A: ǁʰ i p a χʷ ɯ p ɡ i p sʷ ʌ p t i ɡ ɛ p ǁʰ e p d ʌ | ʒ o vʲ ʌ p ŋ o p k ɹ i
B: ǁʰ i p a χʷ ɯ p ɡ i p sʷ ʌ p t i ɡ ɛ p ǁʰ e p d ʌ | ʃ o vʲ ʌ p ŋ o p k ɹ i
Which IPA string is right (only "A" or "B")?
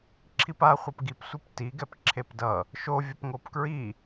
B